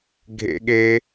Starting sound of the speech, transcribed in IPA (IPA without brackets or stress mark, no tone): ɡʱ